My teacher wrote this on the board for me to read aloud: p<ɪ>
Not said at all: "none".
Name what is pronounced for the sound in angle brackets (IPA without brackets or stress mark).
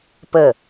ə